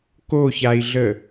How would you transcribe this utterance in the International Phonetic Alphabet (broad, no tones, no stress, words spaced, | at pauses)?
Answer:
koçai̯ɮə